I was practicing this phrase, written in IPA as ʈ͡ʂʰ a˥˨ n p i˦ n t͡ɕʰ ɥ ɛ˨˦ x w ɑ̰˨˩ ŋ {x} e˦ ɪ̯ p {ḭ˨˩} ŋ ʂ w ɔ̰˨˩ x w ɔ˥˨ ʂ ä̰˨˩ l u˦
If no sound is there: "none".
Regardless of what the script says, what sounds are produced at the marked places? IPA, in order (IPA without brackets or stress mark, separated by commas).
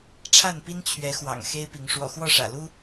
x, i˨˦